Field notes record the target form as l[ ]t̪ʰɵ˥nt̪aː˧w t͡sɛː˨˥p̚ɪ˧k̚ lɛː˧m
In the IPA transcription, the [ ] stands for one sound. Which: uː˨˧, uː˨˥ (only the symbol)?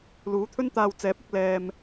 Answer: uː˨˥